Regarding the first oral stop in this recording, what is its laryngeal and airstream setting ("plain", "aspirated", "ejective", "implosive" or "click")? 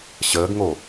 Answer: plain